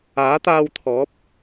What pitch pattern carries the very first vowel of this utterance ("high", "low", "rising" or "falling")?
rising